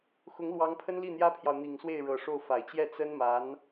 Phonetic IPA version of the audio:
xʊ˧˥ŋlwɑ˧˥ŋpʰə˥n li˥˩n̪jä˥pʰjɑ˨ʊ̯ n̪i˨˩ŋswe˥˩ɪ̯ɻɤ˨˩ ʂo˥˩ʊ̯fa˨˩ɪ̯ t͡ɕjɛ˥˩ t͡sə˥nma˧˥n

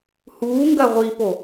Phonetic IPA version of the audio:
huːŋɡɐ ʁʷipo

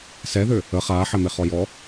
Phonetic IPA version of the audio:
sɛðø | ə χaːħɛmeχɔ jɔ

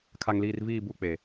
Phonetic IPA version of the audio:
kʰa˨ŋliː˨r viː˦˨bu˦˨k͡pe˨

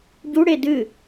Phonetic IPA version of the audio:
ɟuɽe dɨ

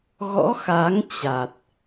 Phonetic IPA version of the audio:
ɣɔ̰˧˥xa˨˦ŋt͡ɕa˨˩t̚

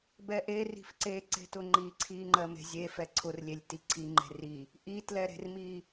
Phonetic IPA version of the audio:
bɛʔeri̤f ǀe ǀe̤tʊŋ͡ǃi ǀʰiŋ͡ǃɜme̤ zʲe fɛǀʰʊrlʲelʲ tiǀʰi ŋ͡ǃe̤ri | ʔitlɛɾe̤rmi

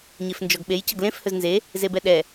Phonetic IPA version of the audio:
ɲefnd͡ʒɔɡɓej cʌɡlẽf hɵznze | zebɛɗɛ

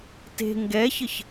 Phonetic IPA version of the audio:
te̤ ŋɡɛçəç

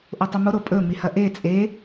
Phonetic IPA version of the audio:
ʔotˤomo ɾopʼɵ mihɐʔe t͡sʼe

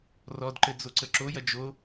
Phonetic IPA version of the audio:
rɔdǃɘ d͡zoǀəǁojɐ d͡ʒo

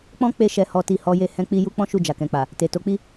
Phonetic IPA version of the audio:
k͡pɔ̃˦ k͡pe˧ ʃɛ˨hɔ˨ti˨ hɔ˨˦je˦˨ hɛ̃˧k͡pi˧ ju˦k͡pɔ̃˦ ʃu˦˨d͡ʒa˨kɛ̃˨k͡pa˨ | te˨to˨˦k͡pi˦

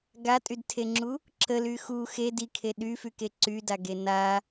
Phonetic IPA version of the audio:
ɡatʼydtʰeŋ͡ǁu | ǁəly xu xe dikʰe ɗyfyke ǀydaɡe na

